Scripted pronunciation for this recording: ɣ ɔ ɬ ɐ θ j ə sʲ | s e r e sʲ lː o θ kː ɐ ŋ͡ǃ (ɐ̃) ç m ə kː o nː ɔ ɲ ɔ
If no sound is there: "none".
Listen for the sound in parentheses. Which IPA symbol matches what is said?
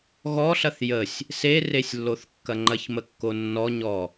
ɐ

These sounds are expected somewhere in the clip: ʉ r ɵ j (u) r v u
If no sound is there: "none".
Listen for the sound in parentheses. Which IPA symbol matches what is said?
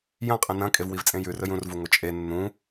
ũ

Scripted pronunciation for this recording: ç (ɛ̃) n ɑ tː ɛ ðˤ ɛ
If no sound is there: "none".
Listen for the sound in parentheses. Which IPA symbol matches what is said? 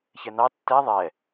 ɛ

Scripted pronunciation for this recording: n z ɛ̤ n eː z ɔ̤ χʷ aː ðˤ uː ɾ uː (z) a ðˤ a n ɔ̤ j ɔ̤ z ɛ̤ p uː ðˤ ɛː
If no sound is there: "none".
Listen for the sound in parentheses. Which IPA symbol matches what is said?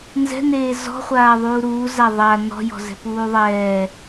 z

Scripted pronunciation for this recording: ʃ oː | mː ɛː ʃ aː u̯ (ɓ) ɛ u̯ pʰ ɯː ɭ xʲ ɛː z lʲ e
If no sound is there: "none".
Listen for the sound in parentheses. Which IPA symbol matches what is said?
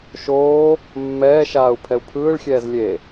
pʰ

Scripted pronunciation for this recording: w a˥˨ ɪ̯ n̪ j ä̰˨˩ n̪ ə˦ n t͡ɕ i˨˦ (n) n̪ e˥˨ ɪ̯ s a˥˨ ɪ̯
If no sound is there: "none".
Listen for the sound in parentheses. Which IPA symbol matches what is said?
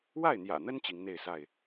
ŋ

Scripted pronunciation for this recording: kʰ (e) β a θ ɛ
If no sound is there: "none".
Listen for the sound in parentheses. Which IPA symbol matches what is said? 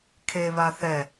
e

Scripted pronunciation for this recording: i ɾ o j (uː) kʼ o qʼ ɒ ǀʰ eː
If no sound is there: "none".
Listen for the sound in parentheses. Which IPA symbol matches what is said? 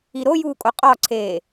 uː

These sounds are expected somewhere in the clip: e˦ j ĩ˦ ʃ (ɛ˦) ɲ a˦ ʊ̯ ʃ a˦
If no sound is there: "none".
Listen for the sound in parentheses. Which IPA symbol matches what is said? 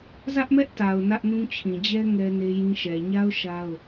ɛ˨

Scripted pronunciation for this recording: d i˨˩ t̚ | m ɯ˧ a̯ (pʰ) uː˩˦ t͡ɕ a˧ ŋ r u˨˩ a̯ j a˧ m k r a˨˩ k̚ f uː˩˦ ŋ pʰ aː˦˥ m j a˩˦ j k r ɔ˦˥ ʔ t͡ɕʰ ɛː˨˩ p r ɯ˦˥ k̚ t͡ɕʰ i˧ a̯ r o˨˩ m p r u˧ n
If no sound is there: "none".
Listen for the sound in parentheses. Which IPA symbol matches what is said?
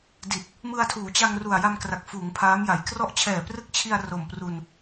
tʰ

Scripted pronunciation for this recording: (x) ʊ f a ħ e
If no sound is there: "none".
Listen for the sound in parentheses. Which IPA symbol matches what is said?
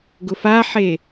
ɡ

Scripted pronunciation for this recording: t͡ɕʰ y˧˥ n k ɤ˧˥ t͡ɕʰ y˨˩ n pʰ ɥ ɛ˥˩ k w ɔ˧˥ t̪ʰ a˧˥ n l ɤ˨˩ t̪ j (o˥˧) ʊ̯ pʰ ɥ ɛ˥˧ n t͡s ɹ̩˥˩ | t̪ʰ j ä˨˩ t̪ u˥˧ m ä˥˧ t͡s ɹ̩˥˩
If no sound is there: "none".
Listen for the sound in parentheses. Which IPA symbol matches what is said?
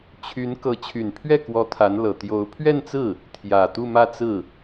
o˧˥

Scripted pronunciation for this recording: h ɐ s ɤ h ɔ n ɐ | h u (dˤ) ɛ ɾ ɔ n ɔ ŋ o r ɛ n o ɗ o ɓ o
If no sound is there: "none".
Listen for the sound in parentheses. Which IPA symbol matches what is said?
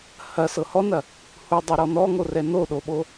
dˤ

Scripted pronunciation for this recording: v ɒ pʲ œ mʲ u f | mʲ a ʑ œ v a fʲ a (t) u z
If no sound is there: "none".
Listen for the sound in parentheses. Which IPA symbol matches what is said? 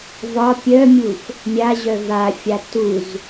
t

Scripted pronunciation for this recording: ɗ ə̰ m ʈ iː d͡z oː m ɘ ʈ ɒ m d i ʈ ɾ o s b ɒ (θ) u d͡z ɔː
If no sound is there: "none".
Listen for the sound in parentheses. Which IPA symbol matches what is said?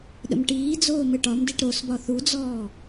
θ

